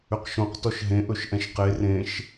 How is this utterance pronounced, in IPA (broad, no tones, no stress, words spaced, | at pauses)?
ʏqʃõq tɔʃɦẽʔɵʃ ʔɛ̃ʃqe rẽʃ